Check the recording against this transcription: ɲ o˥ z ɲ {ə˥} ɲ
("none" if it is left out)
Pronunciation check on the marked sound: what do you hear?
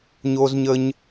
ə˥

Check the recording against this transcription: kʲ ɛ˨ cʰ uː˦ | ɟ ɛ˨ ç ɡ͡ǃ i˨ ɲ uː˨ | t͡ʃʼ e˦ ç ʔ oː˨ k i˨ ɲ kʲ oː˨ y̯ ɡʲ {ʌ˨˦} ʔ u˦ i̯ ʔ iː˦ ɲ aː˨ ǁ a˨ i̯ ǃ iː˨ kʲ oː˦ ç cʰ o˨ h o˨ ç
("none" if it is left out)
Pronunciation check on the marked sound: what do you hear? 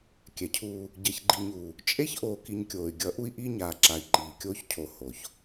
ʌ˨˦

